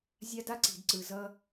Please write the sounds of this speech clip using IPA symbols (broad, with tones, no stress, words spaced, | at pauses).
zʲa˦da˦ ǀi̤˨dǀɯ˨ zʌ˦